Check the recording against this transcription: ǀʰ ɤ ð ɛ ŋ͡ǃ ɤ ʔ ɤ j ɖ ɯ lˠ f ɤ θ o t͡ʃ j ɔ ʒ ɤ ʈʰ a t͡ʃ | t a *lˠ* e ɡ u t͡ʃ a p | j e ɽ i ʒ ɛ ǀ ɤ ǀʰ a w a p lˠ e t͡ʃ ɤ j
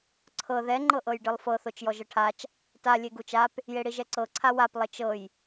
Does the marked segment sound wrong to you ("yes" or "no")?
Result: yes